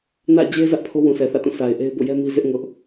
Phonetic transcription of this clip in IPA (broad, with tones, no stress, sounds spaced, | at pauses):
n ä̰˦˨ d͡ʑ e˦ z ä˦ ʔ pʰ o˦ w ũ˨ sʰ ɛ˨ θ ä̰˦˨ t ũ˦˨ s a˨ ɪ̯ ʔ e˦ ɪ̯ b o̰˦˨ j ɛ˦ m i˦ z ɪ˦ ʔ ŋ ʊ˦ ʔ